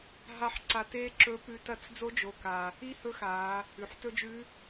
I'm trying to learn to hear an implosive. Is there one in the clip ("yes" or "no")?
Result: no